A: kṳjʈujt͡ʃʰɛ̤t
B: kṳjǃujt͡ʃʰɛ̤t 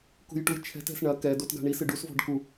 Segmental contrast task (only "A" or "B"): A